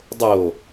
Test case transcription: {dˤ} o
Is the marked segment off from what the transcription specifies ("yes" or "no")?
no